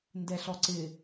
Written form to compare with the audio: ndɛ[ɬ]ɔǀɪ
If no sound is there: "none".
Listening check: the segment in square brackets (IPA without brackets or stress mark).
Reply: ɬ